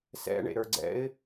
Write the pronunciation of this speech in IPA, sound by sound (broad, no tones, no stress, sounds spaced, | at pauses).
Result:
s ɛ̰ ɳ ḛ ɾ ə˞ ɡ͡ǀ ɛ̰ ɪ̯